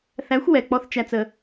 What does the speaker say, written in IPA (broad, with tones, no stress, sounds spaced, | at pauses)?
θ æ˨˦ xʷ w ɛ˨ k͡p ɔ˧ θ t͡ʃ æ˨ t͡s ə˨